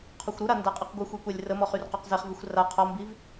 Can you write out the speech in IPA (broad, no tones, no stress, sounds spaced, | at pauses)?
qʰ ɔ xʷ ɾ u ɾ a n d a qʼ i q ɡʷ ə xʷ i kʷ a lʲ r ə m ɔ χ y r q ɔ q z e χ v i xʷ r a qʰ ɔ m b i v